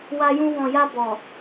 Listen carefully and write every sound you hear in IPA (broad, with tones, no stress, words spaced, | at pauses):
wa˧jũ˧ wɔ̃˨ja˧ bɔ˨